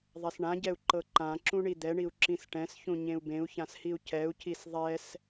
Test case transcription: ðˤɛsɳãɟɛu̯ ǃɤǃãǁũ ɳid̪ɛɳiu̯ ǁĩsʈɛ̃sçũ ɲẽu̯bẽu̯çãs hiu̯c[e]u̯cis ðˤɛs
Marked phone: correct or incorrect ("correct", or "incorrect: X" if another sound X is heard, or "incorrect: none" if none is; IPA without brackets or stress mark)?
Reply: incorrect: ɛ